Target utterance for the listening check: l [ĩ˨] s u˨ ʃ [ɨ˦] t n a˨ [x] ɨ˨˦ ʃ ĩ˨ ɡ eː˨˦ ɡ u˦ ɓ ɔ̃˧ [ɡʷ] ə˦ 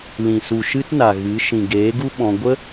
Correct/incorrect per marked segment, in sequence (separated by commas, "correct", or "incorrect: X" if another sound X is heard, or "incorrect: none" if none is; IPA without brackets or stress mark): correct, correct, incorrect: ɣ, correct